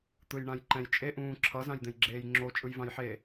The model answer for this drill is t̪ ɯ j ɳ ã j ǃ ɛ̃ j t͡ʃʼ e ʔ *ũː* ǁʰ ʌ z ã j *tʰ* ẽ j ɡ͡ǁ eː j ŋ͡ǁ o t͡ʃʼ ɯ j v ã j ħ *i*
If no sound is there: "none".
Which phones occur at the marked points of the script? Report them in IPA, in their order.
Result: ũː, d̪, e

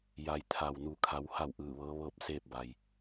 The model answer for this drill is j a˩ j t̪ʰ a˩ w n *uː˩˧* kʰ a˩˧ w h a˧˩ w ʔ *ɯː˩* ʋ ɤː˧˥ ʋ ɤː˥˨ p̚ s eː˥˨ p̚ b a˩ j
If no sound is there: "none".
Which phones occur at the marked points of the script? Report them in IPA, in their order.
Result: u˩˧, ɯː˧˩

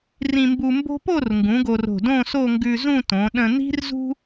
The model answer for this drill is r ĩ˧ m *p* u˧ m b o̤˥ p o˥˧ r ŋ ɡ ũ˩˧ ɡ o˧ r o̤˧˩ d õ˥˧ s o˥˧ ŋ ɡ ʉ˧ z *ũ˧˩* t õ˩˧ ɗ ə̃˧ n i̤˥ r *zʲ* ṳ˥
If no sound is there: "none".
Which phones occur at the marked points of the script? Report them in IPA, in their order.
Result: b, ũ˥˧, z

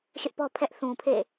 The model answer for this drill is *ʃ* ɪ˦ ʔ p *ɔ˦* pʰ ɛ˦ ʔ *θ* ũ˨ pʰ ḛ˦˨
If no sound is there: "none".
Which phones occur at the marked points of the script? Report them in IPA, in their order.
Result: ʃ, ɔ˦, θ

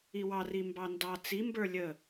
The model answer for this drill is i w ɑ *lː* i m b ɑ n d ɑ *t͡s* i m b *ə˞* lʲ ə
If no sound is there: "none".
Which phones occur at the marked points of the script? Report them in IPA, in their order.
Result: r, t͡s, ə˞

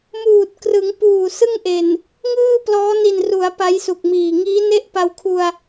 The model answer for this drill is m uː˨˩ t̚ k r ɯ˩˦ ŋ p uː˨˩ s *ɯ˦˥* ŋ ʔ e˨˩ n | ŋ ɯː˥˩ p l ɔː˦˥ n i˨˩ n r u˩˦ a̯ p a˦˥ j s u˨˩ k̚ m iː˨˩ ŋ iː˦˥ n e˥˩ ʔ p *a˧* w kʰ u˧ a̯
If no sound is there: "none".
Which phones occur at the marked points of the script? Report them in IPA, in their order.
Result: ɯ˥˩, a˧

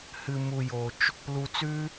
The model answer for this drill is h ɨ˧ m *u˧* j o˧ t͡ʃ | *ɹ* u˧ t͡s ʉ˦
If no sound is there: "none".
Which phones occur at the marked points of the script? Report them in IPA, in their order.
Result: u˧, l

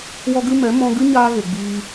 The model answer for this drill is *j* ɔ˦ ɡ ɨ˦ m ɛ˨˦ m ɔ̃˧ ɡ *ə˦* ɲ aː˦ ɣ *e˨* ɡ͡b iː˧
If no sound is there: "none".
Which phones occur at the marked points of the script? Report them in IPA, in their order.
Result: w, ɨ˦, e˨

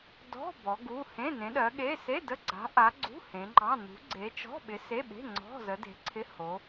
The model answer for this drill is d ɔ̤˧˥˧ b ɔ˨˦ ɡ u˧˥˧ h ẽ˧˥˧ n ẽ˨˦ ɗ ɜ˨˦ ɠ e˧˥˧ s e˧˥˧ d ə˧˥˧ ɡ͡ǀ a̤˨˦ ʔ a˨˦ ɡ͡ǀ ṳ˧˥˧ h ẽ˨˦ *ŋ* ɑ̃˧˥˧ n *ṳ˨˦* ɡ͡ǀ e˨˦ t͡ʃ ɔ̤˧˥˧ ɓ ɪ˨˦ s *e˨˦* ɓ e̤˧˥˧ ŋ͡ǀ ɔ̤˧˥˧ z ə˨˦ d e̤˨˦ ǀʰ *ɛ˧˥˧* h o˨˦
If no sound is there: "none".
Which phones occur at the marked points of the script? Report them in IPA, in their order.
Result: ŋ͡ǃ, ṳ˨˦, e˧˥˧, ɪ˧˥˧

